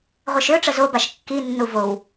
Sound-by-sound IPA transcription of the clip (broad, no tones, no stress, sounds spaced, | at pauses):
ʁʷ e ʃ ø ʈ͡ʂ ə z o b a ʃ kː i nː u v o w